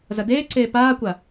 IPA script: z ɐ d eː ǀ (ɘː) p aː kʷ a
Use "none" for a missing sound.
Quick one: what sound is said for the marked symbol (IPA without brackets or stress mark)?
eː